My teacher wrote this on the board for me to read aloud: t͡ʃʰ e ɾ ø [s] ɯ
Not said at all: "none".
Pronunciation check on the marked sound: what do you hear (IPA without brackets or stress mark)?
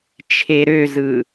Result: z